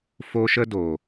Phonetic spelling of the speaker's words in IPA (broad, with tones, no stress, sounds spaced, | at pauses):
f o˦ ʃ ə˦ d o˨